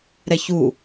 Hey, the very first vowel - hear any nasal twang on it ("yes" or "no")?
no